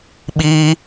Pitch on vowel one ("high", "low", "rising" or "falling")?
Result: high